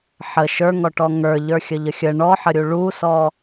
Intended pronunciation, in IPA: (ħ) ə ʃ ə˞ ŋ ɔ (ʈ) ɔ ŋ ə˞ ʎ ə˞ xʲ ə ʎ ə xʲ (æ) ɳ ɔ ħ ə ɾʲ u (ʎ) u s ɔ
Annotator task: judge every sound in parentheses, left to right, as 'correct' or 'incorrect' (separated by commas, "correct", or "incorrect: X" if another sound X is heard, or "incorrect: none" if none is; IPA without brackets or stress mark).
correct, correct, incorrect: ə, incorrect: ɭ